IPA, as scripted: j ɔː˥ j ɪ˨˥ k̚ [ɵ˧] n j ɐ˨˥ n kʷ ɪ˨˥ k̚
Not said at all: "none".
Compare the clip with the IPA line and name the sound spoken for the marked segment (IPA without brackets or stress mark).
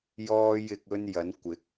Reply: ɵ˥